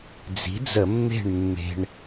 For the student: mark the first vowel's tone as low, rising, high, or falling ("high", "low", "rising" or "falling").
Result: rising